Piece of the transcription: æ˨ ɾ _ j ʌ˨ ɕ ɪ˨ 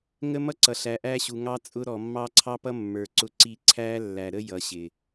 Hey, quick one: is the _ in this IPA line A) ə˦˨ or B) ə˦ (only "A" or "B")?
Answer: B